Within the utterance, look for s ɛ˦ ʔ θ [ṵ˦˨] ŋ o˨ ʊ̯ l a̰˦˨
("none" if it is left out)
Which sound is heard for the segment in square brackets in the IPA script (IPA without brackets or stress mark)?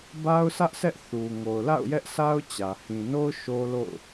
u˨